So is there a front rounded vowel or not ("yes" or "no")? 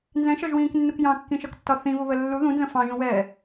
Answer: no